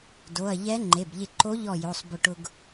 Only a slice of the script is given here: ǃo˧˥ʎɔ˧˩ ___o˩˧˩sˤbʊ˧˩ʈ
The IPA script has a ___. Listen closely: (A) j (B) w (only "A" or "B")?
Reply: A